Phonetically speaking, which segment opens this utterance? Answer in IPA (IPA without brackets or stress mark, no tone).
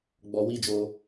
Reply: ɡ͡b